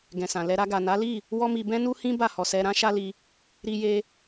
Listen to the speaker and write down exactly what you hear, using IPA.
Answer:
ɡɛ̃˨sã˨ lɛ˧ ɾa˧ɡa˨na˨˦ li˦˨ | wɔ˦mi˧ bɛ̃˦nu˦hĩ˦ ba˦˨hɔ˨sɛ˧ ɾã˦ʃa˦li˧ | ɾi˧je˧

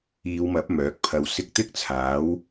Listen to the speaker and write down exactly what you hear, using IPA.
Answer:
iː˨˧wmɐ˨˥p̚ mœː˨˥k̚pʰɐ˧wsɪ˥k̚ t̪ɪ˥k̚t͡sʰaː˨˥w

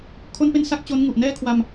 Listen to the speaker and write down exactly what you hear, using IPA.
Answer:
kʰo˥˩npe˥˩nsa˥˩k̚ t͡ɕo˦˥nŋu˨˩ʔ nɛː˥˩kʰwa˧m

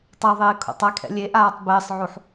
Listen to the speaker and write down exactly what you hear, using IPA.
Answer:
tˤaðˤɪː kʰo̰tˤakʰɛ̰ lʲeʔaːtˤ bɪːsˤʕuħ

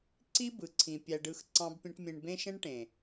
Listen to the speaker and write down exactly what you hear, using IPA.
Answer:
ǀi˦ bɯ˨ǀʰĩ˨ pʲæ˧ɖɯ˧xǀɑ̃˦bpʲẽ˦ʈ mʲẽ˧ɳbẽ˦ʃẽ˦ɳʈẽ˨

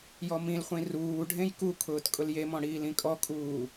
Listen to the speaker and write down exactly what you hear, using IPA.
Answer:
jɔmĩlχʷĩ ruː ɖʱẽjkukʰʊːt kʼʊljemɔ̃ ɽiːlĩkʼɔkʼuː

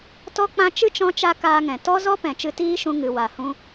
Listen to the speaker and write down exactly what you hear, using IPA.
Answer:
tɔ˦k͡pã˦ t͡ʃɨ˦t͡ʃɔ̃˧t͡ʃa˧ kaː˧ŋɛ̃˨ tɔ˦zɔ˦ pɛ̃˨t͡ʃɨ˧tiː˦ʃũ˧ ŋɨ˨wa˨hũ˧

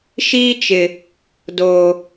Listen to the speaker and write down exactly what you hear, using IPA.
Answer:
ʃiː˦t͡ʃɪ˨ | doː˨

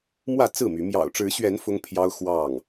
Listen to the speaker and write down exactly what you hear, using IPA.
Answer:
mwä˥˨ t͡sɹ̩˥˨my˨˦ mjɑ̰˨˩ʊ̯ʈ͡ʂɻ̩˨˦ɕɥɛ˨˦n fʊ˦ŋpʰjɑ˦ʊ̯ xwɑ˥˨ŋ

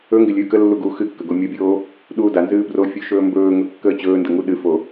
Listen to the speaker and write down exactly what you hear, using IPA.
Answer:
ɵ ŋɡɪlʲɨːkəlːu ɡu xɨkːə ɡomʲobʲoː | ɗuːdanzɨː brofʲu ʃɵːmbɵːŋɵ kːəːt͡ɕɵːndə ŋuɗɨfo

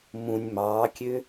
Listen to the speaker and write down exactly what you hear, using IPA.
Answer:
mũnʲ mɑːkʲø

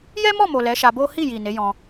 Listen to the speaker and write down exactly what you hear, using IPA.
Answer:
jɛ˦mɔ˦˨mo˨ lɛ˨˦ʃa˧bo˦ hi˦˨ji˨ ne˨˦jɔ̃˧

